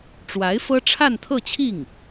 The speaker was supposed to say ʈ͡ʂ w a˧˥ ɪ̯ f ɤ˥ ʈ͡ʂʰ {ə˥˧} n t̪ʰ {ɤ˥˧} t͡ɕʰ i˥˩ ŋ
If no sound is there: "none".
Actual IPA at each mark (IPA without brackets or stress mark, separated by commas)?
a˥˧, ɤ˥˧